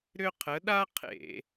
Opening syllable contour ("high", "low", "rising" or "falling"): high